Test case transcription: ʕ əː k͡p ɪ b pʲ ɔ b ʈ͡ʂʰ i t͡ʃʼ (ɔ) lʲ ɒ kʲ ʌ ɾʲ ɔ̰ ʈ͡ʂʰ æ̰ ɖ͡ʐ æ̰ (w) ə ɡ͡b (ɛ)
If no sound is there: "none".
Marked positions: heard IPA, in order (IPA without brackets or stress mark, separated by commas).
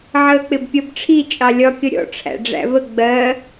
ɑ, v, ɜ